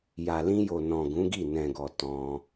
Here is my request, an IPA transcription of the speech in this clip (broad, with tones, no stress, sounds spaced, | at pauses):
j a˨ l ĩ˧ j o˨ n ɔ̃˨ ɡ ũ˨˦ ɡ i˦˨ n ɛ̃˨ ɡ ɔ˨ t ɔ̃˧